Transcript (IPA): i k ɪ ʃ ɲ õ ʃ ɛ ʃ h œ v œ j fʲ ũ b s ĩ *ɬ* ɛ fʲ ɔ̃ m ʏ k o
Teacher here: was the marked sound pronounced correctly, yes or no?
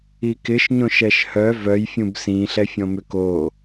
yes